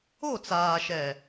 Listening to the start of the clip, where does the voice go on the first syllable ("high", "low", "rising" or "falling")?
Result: falling